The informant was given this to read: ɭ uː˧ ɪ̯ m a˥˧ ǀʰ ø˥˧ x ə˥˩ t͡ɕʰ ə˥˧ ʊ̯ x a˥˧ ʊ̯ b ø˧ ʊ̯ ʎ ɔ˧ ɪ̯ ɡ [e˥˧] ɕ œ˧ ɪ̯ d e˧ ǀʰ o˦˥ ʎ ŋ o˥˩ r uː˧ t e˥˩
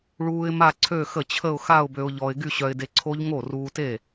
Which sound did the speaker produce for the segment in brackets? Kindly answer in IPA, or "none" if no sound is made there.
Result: y˥˧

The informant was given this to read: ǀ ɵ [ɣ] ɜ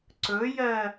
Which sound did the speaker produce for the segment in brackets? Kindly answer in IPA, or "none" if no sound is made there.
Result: j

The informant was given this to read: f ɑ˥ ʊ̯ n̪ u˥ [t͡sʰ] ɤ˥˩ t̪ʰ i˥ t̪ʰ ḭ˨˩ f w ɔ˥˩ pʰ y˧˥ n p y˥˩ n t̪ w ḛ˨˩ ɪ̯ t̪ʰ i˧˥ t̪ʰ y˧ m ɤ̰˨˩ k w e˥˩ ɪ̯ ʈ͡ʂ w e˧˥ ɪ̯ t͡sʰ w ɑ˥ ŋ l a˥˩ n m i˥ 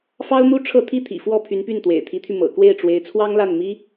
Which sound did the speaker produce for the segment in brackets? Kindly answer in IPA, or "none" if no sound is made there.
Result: ʈ͡ʂʰ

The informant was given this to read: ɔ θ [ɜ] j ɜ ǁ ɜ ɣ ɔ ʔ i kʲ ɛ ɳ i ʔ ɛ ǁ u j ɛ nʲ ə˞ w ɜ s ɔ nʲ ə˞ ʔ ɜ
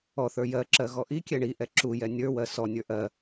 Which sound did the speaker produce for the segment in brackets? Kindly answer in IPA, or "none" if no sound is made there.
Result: ə˞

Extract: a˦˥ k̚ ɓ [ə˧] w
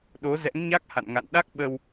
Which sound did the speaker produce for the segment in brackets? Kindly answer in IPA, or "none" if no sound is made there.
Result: ə˧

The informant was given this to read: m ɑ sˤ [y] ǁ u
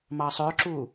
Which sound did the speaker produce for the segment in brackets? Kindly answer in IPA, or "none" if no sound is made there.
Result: ø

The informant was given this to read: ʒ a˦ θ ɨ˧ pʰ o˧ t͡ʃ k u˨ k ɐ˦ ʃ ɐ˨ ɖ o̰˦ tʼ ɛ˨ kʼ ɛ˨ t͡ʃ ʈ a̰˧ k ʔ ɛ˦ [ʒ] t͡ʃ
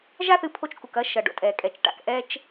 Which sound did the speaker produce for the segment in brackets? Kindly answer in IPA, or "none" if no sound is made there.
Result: none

